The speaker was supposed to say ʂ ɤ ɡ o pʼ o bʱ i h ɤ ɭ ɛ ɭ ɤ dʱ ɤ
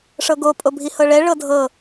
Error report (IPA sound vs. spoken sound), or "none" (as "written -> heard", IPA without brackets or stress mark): none